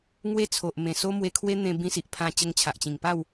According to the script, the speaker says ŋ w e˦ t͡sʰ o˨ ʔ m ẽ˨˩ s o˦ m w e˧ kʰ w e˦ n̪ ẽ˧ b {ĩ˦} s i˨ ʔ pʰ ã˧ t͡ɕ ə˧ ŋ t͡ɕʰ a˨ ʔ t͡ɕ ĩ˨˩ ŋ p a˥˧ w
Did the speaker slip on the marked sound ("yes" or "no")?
yes